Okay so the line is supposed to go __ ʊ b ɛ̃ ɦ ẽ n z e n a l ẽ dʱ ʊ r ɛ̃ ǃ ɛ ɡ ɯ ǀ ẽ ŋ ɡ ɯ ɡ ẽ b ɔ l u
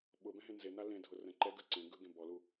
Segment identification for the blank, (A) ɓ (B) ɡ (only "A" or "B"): A